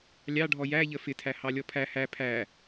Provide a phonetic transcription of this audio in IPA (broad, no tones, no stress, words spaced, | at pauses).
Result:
lʲɑɖʱɔ jæʎə fɪtʰæ hɑlʲɔpʰæ hæ pʰæ